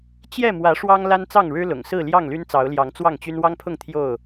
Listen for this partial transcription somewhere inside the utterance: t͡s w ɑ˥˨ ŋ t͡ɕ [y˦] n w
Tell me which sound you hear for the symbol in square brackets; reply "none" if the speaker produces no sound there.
y˦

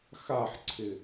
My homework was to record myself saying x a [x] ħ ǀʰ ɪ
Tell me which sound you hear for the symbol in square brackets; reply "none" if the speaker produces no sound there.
none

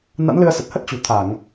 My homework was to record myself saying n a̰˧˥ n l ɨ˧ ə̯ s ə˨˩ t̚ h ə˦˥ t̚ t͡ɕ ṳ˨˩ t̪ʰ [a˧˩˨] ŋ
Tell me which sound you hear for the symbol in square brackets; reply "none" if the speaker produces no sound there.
a˧˩˨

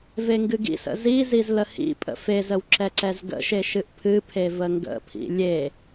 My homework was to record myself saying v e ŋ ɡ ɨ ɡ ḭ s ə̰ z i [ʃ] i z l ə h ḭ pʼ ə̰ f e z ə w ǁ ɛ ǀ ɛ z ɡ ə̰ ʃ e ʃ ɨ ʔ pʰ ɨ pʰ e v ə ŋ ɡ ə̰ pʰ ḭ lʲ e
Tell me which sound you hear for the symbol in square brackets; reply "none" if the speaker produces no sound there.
z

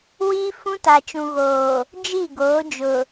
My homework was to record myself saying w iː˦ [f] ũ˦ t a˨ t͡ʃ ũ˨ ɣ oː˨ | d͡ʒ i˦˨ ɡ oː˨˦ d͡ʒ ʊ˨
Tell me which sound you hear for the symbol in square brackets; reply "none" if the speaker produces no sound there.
f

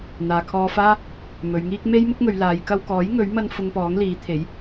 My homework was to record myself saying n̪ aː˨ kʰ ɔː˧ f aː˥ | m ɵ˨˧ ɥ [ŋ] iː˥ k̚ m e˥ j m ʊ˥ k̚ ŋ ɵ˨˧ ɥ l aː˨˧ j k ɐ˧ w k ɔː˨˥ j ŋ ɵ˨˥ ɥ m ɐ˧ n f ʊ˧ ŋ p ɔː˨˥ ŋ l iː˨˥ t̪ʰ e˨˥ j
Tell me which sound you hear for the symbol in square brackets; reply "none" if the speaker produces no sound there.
ŋ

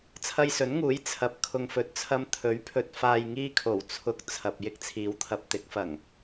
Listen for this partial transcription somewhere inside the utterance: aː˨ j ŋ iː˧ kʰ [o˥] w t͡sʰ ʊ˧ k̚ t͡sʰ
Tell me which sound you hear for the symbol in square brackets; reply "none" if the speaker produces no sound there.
o˨˩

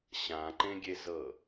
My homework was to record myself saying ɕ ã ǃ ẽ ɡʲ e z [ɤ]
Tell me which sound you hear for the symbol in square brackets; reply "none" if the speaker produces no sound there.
ɤ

